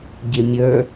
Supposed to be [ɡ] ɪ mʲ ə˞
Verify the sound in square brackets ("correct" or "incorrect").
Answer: incorrect